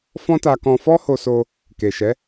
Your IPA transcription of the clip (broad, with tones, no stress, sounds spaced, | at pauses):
f ɔ̃˦ t a˧ k ɔ̃˧ f ɔ˦ h o˧ s o˧ | k e˨ ʃ ɛ˨˦